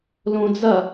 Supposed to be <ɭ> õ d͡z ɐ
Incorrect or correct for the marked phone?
incorrect: l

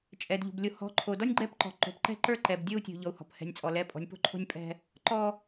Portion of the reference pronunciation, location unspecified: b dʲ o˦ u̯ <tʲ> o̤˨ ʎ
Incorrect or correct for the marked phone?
correct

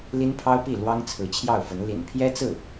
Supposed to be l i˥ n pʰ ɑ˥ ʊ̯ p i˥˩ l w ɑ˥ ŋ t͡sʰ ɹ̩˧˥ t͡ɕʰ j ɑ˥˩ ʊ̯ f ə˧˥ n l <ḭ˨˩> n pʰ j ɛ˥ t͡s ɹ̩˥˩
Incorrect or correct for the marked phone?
correct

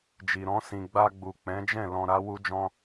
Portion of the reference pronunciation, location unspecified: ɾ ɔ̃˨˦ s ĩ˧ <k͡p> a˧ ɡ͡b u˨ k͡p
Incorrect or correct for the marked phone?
incorrect: ɡ͡b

